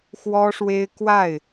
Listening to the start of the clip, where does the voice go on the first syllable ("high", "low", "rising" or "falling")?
high